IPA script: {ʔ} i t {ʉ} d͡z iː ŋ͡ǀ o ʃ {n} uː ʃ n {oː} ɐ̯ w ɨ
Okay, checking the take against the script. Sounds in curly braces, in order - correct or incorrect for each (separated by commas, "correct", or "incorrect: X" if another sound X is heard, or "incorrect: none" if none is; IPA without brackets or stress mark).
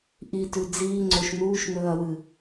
correct, correct, correct, incorrect: ɵː